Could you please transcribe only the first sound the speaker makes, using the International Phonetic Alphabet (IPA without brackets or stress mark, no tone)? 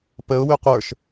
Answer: p